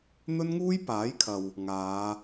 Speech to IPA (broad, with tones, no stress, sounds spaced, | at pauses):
n̪ ɵ˥ n ŋ uː˥ j p aː˨˥ j kʰ ɐ˨ w | ŋ aː˨˧